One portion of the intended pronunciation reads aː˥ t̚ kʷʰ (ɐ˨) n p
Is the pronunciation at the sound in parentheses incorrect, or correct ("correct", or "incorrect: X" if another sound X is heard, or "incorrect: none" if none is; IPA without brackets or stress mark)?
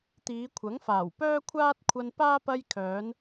incorrect: ɐ˧